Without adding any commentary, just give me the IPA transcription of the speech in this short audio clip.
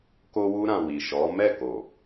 k o˧ w u˧ ɾ ã˨ w i˨ ʃ ɔ˨˦ m ɛ˦˨ k o˨

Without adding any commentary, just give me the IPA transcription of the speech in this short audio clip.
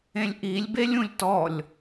ẽ lʲ ʔ i lʲ b e lʲ ũ lʲ t ɔ lʲ

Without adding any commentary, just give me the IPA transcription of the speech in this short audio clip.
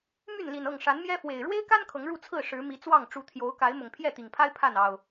m y˥˨ n l i˨˩ n ɤ˥˨ ŋ ʂ a˨˦ n m j ɛ˦ f w e˨˩ ɪ̯ ɻ w e˦ ɪ̯ k a˦ n kʰ ɤ˨˦ ŋ ɻ u˥˨ t͡sʰ ɹ̩˥˨ ʂ ɻ̩˨˦ m i˨˦ t͡s w ɑ˥˨ ŋ ʈ͡ʂ u˨˦ t̪ʰ j o˨˦ ʊ̯ k a˨˦ ɪ̯ m ʊ˨˩ ŋ pʰ j ɛ˥˨ t̪ i˨˩ ŋ pʰ a˦ ɪ̯ pʰ a˥˨ n ɑ˨˩ ʊ̯

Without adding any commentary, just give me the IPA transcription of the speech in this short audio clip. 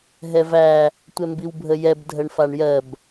ɦ ɛ v æ | tʷ ɛ m b i w bʱ ə j ɛ b dʱ ə ɳ f a ɳ j ɜ b

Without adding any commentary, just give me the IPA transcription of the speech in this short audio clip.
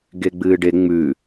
ɡ e ɡ͡b ɨː ɖ e ŋ͡m ʉ

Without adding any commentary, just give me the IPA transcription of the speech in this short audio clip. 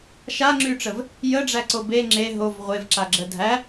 ʃ a ŋ͡ǁ y ʈ͡ʂ ə v | j ə ɖ͡ʐ æ ǀ o b e ŋ͡ǁ e ɦ o v ʁʷ e v ǁ a ɡ͡ǁ ə dʱ æ

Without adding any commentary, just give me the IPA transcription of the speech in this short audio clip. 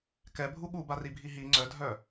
k ɛ bʱ u ɠ u b a r i bʱ i ɦ i ŋ͡ǀ œ dʱ œ

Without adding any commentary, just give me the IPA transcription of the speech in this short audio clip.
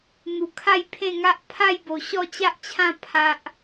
n̪ u˧ kʰ a˥˧ j pʰ ẽ˥˧ ŋ a˦ ʔ pʰ a˥˧ j b o˧ ɕ ɔ˥˧ t͡ɕ a˦ ʔ t͡ɕʰ ã˥˧ pʰ a˦ ʔ

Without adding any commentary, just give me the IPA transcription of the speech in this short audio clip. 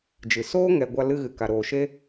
d͡ʒ ɨ˨ s oː˦ ŋ ɛ˨ ɡʷ a˧ l ɨ˧ ɣ ɨ˨ k a˨ ɾ oː˨ ʃ e˦

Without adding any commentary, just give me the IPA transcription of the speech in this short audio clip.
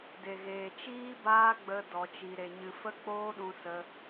d e˨ ɣ eː˨ t͡ʃ iː˦ b aː˦ ɡ͡b ə˧ d ɔ˧ t͡ʃ i˧ ɾ e˧ ɲ ɨ˧ f ə˦ k͡p oː˦ ɗ ũ˦ s ə˦

